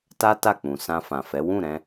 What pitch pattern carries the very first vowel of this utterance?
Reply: high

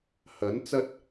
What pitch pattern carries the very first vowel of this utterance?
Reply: rising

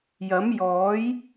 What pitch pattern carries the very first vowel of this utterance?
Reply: rising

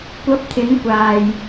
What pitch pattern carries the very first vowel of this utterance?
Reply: rising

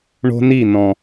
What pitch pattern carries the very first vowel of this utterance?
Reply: high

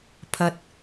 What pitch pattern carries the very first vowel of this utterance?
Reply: low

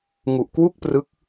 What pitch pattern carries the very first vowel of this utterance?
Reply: low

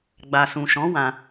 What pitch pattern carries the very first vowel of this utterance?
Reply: low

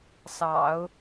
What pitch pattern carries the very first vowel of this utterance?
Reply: low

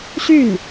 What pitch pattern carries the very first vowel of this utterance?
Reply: falling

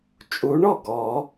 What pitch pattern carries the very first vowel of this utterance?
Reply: rising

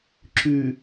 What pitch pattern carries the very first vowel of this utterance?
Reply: low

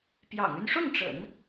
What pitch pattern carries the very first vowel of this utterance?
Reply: low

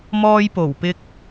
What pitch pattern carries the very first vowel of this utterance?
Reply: high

